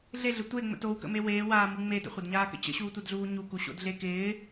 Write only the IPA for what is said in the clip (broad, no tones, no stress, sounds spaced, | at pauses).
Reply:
ɮ e ɮ ə tʷ e ŋ͡m ə̰ t o w k ə̰ m e w eː w aː m u ŋ͡m e d ə̰ χʷ ɐ d ɲ aː k ə̰ t͡ɕ ə̰ ɕ uː tʷ ə d ɮ uː ɲ u k u ɕ o̰ d ɮ e k ɪː